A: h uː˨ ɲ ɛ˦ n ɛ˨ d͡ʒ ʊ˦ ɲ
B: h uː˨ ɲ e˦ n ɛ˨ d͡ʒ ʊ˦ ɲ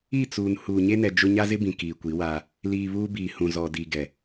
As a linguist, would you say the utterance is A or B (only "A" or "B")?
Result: B